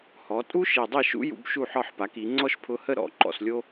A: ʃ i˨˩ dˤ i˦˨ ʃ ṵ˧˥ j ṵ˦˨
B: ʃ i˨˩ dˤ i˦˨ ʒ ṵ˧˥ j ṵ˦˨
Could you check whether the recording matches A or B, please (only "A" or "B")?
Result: A